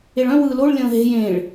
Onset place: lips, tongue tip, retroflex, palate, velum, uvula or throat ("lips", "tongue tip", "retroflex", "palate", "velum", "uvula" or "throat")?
retroflex